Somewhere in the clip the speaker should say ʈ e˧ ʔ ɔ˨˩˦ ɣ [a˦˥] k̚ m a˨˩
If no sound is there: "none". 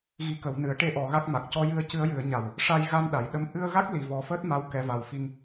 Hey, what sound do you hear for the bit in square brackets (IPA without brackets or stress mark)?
a˦˥